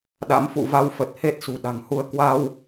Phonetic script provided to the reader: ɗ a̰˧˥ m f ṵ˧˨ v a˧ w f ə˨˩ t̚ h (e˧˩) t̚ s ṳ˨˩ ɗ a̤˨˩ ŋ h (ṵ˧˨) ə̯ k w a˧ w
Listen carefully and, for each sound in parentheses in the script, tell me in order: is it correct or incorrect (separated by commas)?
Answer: incorrect, incorrect